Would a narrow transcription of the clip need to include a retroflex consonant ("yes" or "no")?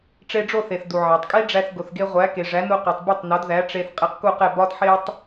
yes